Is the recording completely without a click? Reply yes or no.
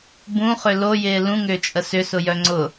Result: no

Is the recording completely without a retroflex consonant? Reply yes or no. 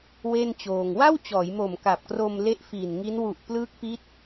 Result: yes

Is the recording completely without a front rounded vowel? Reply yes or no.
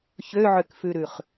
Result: no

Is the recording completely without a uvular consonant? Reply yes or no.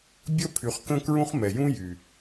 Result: no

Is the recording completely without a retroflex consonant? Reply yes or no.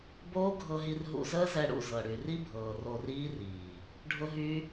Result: no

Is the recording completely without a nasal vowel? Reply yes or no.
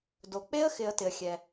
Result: yes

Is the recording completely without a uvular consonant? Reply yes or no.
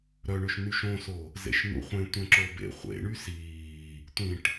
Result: no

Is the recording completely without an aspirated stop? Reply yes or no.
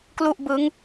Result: yes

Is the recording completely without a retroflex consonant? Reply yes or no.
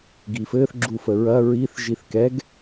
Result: yes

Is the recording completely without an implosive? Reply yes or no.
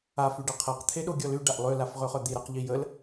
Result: no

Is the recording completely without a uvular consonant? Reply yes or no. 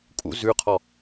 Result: no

